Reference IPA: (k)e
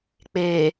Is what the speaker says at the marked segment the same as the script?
no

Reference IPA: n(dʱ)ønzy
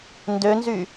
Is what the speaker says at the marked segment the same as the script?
no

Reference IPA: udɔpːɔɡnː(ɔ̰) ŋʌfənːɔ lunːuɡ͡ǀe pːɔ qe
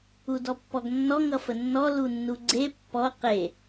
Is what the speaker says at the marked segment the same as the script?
no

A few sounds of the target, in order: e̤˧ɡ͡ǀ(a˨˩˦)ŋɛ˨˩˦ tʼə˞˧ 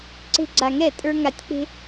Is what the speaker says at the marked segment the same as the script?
yes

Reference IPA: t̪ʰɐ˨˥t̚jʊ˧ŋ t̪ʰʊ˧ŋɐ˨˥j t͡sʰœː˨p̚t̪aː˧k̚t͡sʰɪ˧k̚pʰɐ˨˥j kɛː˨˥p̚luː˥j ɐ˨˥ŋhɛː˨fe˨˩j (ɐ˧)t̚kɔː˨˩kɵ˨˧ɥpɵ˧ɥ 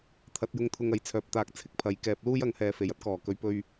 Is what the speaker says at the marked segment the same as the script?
no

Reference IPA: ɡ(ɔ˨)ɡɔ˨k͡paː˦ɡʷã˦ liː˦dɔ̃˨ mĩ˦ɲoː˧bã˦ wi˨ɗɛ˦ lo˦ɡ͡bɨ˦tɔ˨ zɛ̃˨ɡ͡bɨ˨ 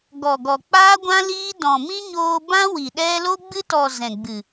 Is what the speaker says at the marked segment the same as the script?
yes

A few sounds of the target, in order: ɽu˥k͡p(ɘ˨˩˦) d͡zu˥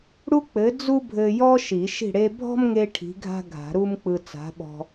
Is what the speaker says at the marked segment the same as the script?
no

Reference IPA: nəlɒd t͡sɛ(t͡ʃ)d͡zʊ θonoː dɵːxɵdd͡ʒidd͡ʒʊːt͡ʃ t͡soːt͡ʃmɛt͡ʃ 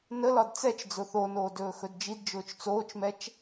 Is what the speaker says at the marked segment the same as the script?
yes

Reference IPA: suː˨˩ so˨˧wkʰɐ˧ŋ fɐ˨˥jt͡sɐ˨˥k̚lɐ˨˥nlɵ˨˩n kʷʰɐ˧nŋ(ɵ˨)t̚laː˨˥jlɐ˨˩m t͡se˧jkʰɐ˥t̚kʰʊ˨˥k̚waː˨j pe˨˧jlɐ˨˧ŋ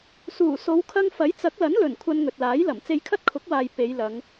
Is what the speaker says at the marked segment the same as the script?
yes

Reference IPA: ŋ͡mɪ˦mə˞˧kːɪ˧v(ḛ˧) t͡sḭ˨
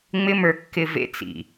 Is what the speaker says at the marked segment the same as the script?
yes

